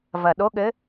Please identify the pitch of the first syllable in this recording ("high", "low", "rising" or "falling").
low